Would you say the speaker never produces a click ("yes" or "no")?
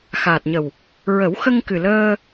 yes